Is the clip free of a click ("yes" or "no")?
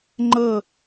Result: no